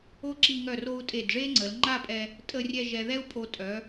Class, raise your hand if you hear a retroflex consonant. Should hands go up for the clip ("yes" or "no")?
yes